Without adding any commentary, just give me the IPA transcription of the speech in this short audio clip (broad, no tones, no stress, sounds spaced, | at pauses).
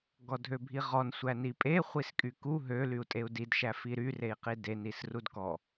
ɡ ɔ dʱ ø bʱ i ʁ ɔ n sʷ æ n i pʼ e χʷ i s kʼ y k u ɦ ø l y u̯ tʼ e u̯ d i d ʃ æ f i ɾ y r e i̯ q i d e n i s r u d k ɔ